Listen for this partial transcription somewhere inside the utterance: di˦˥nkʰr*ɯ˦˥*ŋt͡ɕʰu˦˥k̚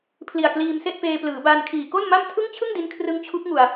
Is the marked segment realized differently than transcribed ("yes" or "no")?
no